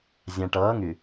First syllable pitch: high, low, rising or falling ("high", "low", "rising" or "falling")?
low